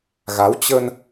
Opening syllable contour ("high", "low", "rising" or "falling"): rising